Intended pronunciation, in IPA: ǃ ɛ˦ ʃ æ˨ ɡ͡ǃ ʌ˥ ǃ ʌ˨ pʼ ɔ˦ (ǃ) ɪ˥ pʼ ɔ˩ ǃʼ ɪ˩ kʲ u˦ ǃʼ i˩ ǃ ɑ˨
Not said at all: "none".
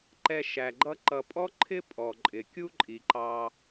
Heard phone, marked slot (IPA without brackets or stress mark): ǃʰ